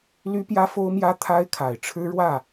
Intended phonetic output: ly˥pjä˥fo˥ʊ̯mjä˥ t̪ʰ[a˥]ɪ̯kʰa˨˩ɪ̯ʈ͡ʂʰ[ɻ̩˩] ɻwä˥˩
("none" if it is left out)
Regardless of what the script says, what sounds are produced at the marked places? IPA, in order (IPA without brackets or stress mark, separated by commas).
a˥, ɻ̩˥